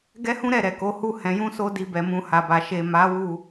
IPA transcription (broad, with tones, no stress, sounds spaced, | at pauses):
ɡ ɛ˦ h ũ˦ ɾ ɛ˦˨ ɾ ɛ˨ k o˨˦ h u˦ h ɛ̃˧ j ũ˦ s o˦ d i˧ b ɛ˨ m ũ˧ h a˨ b a˨ ʃ e˨ m a˨˦ w u˦˨